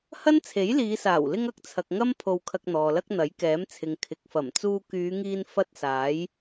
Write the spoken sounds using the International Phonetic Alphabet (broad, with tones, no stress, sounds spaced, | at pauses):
h ɐ˥ n t͡sʰ e˨˥ j l iː˨˧ s aː˨˩ w l ɪ˧ ŋ ɐ˧ k̚ t͡sʰ ɐ˨ k̚ ŋ ɐ˥ m pʰ o˧ w kʰ ɐ˧ k̚ n̪ ɔː˨ l ɐ˥ k̚ n̪ ɐ˨˥ j k ɛː˨˥ m t͡sʰ ɪ˨ ŋ kʰ ɪ˨ k̚ f ɐ˨˩ m t͡s uː˧ k yː˨˧ ŋ iː˧ n f ɐ˥ t̚ s aː˨˥ j